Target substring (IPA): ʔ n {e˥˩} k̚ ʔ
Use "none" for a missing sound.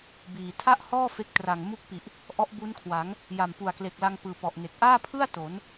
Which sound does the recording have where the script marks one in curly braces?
e˨˩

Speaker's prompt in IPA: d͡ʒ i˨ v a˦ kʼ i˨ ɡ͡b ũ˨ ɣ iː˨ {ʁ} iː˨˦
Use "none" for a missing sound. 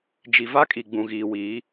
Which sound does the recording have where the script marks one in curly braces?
w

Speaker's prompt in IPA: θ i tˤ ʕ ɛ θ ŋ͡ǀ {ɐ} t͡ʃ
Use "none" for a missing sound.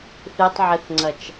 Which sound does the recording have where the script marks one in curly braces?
ɐ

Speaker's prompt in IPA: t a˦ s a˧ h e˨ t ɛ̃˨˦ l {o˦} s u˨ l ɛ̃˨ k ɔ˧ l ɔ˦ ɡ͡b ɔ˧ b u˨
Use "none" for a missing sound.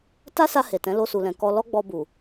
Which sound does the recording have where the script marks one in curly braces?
o˧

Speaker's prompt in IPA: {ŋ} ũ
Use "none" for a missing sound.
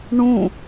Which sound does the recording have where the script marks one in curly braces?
ɳ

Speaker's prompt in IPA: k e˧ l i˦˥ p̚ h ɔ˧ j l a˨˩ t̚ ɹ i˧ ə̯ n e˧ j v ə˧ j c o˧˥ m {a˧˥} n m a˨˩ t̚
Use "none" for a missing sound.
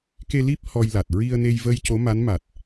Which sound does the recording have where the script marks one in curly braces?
a˧˥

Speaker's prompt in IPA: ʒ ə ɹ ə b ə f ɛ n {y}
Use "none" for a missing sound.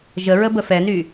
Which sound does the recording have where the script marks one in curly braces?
y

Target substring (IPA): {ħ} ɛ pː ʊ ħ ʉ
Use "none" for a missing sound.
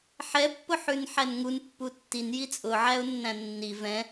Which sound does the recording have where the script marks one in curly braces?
ħ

